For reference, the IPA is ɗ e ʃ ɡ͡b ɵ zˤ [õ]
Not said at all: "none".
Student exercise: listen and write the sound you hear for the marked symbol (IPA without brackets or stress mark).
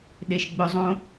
õ